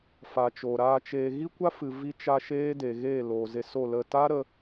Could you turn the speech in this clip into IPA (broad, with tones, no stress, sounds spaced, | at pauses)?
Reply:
f a˨ t͡ʃ o˨ ɾ aː˧ t͡ʃ eː˧ ɣ i˦ kʷ a˦ f ɨ˨ v i˧ t͡ʃ a˧ ʃ eː˦ d e˨ ɣ eː˦˨ l oː˨ z e˧ s o˦˨ l ə˦˨ t aː˦ ɾ ə˧